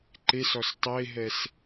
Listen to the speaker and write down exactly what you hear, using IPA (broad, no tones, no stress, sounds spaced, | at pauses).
ǃ e s ɔ s tˤ e ɦ ɛ s